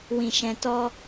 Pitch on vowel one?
low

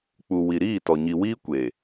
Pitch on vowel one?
low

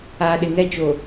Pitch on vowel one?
low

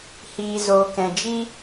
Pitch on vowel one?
low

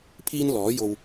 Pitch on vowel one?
high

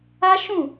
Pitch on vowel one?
high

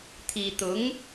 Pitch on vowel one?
low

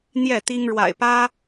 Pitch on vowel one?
falling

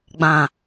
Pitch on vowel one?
low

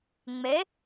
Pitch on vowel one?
rising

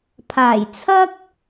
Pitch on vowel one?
low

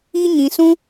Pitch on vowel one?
high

